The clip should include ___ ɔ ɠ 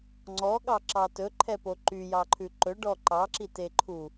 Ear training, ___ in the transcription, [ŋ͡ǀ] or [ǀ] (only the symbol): ŋ͡ǀ